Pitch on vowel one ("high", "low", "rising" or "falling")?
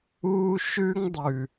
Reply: high